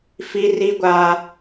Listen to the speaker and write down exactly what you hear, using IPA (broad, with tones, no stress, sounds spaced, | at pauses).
f i˦ r i˦ ɡʷ aː˦